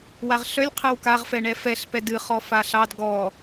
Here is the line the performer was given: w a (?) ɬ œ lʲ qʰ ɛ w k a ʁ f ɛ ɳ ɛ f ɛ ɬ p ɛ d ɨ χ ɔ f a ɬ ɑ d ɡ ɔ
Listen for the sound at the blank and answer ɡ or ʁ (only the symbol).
ʁ